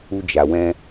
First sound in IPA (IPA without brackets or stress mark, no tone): u